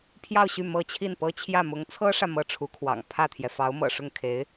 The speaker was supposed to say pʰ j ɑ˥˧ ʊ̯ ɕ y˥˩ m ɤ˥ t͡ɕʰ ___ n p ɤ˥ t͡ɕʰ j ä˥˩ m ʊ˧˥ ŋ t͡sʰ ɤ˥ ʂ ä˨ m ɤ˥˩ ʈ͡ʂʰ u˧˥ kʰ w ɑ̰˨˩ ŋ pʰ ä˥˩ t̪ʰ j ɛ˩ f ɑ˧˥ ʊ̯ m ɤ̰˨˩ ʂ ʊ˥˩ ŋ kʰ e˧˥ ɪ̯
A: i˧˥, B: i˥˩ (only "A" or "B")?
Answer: B